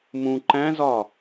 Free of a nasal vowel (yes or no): no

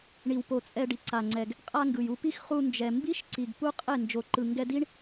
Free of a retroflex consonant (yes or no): no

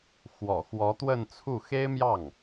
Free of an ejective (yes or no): yes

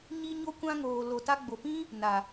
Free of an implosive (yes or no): yes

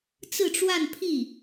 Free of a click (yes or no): yes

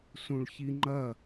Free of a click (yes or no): no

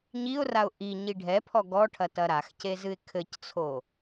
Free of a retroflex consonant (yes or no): no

